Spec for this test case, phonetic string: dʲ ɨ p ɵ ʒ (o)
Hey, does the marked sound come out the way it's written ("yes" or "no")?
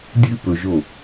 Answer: yes